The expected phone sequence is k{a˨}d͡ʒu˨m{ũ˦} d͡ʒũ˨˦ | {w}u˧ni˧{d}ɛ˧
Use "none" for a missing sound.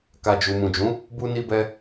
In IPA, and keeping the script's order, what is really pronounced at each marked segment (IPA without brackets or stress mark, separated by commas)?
a˨, ũ˨, b, b